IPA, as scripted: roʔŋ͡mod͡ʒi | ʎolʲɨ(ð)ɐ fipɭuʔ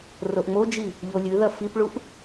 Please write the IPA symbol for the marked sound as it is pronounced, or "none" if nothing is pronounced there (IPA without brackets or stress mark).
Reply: ð